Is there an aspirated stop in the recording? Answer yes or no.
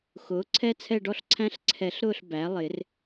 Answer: yes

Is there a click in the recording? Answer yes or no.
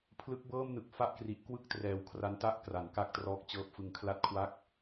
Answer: no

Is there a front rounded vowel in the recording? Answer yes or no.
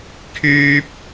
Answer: yes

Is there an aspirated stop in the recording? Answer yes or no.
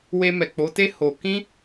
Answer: no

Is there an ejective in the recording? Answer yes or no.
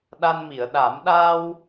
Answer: no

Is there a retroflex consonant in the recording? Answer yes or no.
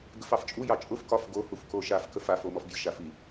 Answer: no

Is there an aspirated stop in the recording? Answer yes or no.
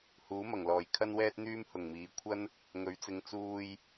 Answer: yes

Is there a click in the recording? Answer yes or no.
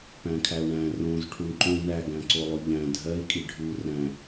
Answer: yes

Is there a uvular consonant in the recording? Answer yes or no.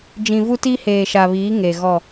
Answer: no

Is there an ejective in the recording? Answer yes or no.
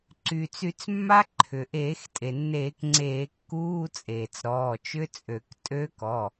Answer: yes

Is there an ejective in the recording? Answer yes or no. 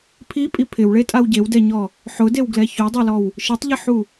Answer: yes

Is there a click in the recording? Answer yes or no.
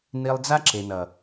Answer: yes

